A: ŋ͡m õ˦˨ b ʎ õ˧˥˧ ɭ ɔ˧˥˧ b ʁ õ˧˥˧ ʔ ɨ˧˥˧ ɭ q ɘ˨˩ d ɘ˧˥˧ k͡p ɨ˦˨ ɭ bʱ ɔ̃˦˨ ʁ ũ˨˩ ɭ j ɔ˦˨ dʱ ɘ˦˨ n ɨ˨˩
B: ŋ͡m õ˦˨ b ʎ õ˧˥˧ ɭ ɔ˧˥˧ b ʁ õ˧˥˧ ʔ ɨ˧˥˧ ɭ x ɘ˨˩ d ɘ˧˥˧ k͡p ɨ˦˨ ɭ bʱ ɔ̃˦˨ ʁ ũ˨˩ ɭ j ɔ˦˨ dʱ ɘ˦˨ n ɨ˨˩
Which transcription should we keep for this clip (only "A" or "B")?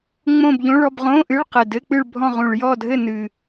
A